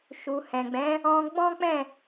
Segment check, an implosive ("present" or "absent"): absent